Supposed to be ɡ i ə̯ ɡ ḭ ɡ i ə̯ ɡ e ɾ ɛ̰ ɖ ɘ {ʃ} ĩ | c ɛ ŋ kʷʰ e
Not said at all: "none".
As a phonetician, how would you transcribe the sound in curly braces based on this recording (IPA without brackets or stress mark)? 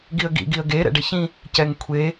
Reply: ç